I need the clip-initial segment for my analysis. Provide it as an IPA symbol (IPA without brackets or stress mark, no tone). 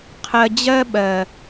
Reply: qʰ